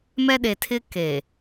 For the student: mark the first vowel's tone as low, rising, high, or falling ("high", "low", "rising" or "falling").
high